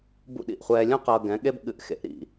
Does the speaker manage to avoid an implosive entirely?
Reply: no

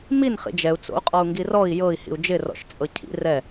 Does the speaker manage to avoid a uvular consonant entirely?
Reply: no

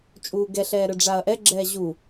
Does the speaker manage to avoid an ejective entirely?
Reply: no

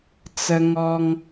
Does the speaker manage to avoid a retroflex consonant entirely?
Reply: yes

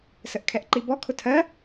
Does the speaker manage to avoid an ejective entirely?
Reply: yes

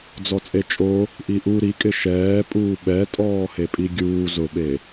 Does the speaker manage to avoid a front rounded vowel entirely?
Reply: yes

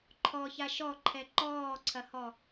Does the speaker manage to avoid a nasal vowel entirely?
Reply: yes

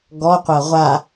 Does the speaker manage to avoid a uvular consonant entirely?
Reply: no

